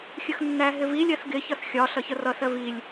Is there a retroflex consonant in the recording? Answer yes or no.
no